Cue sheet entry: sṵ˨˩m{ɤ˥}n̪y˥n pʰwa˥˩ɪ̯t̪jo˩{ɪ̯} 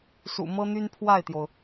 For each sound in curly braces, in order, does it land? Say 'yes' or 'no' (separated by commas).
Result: yes, no